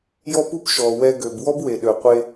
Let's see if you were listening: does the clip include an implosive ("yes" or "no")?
yes